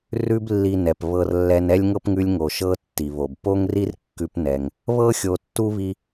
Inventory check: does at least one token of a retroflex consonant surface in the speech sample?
no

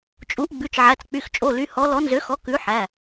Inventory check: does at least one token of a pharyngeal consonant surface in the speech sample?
yes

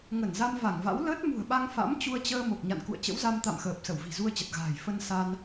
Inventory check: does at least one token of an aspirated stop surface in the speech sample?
no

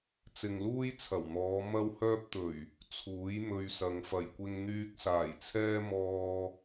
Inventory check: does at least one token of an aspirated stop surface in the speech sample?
yes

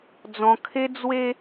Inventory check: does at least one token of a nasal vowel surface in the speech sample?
yes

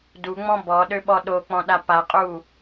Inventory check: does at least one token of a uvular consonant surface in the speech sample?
yes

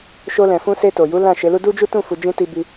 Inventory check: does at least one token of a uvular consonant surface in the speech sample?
no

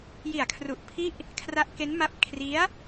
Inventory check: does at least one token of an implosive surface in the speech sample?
no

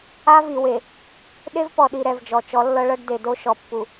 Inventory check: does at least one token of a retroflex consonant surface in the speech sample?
yes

